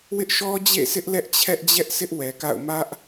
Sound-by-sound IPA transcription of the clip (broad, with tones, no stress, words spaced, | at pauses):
wɪ˦ʔʃɔ˦d͡ʑḛ˦˨sʰɪ˦ʔ lɛ˦ʔt͡ɕʰɛ˦ʔd͡ʑɛ˦ʔsɪ˦ʔ wɛ˨ka̰˦˨ʊ̯ mä˦ʔ